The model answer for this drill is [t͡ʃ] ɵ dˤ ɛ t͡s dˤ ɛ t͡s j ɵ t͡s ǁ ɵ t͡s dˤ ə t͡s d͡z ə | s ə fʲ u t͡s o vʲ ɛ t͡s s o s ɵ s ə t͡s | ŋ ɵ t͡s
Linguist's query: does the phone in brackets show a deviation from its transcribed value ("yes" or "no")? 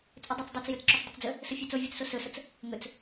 yes